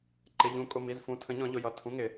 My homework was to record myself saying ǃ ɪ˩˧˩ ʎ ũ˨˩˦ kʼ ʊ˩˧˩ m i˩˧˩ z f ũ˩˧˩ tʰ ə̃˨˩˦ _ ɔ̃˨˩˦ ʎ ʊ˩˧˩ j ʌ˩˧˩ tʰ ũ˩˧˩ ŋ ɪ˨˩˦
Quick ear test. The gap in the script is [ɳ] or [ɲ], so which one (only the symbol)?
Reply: ɲ